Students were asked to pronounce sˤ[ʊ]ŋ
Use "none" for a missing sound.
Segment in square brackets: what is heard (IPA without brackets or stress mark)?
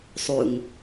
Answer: u